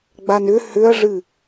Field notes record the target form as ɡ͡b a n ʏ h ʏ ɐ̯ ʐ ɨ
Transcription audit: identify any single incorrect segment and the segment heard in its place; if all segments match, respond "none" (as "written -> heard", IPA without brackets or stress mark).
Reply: none